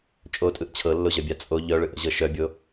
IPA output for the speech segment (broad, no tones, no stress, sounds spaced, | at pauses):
t͡ʃʼ o tʼ ɯ ʔ t͡ɕʰ ɤ lː o ʑ œ bʲ a t͡sʼ o ʎ œ ɭ ɯ ʔ ə̰ ʑ ɤ ʃ œ bʲ o